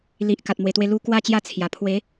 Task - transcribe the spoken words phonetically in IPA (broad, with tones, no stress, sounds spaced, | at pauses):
l i˨ ʔ k a˨ t̚ m w e˨˩ t̪ w e˧ l u˦ k w a˥˧ t͡ɕ j a˦ t͡sʰ j a˨˩ pʰ w e˨˦